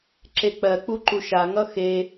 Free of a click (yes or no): no